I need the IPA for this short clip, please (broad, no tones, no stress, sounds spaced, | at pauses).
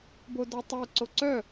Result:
b o d ɔ tˤ ə˞ ǀ o ǀ œ